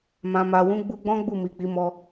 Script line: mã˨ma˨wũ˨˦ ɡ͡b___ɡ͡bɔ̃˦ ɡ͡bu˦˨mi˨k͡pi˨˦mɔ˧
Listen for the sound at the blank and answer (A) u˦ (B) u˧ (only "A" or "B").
B